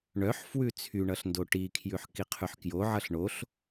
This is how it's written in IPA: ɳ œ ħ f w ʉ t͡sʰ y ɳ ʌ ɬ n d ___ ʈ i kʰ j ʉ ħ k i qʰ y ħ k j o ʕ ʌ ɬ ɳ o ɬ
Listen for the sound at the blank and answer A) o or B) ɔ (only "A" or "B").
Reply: A